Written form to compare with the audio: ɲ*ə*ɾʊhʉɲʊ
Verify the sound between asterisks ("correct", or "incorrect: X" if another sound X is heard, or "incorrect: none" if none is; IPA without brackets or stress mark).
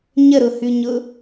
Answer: correct